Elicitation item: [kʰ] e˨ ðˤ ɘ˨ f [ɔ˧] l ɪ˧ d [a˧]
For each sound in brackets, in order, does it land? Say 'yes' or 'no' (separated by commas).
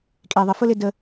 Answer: no, no, no